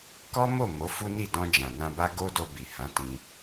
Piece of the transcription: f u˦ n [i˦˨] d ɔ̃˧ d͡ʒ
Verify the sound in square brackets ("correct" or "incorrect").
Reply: correct